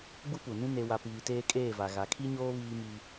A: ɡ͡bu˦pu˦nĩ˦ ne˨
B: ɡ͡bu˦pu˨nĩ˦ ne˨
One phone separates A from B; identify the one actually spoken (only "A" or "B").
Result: B